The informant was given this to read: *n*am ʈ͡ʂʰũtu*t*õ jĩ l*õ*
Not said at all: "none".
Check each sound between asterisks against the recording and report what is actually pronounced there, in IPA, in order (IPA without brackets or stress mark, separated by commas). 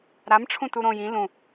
ɾ, ɾ, ũ